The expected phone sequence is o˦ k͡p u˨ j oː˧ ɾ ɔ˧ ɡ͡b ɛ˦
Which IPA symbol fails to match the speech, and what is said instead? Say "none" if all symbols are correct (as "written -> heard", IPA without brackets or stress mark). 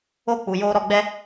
none